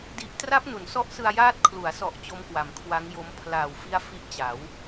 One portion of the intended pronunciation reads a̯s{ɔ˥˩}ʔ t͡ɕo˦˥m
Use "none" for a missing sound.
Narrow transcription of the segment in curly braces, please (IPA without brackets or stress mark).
ɔ˨˩